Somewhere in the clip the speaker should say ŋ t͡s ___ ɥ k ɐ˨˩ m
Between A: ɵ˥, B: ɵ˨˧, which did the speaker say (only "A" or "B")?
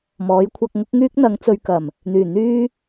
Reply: B